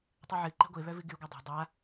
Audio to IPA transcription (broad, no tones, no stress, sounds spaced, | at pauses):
tˤ ɨ ʕ ɨ ǃ ɛ̤ ɡʷ e β œ v ɨ ɡ y ɡʷ œ dˤ ɛ̤ dˤ a